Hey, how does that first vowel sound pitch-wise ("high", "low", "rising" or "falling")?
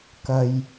low